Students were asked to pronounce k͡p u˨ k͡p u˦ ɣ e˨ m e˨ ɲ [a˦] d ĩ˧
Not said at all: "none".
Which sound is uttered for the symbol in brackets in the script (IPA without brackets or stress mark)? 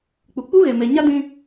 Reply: a˦